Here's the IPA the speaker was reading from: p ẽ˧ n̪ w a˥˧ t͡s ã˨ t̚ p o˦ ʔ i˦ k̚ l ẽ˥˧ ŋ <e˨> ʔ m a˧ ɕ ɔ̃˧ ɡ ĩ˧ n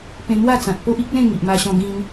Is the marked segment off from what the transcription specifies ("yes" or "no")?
yes